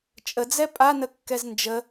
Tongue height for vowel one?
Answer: mid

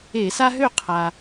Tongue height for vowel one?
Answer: mid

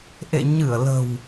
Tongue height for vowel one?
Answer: mid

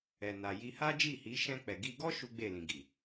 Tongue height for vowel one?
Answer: mid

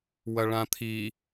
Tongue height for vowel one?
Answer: low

